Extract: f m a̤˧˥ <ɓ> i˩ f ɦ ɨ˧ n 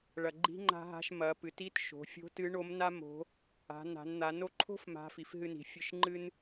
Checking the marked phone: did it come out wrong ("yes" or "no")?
yes